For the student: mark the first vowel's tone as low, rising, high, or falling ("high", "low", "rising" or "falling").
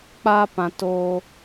high